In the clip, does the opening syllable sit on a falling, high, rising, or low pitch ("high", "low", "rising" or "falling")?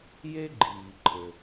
high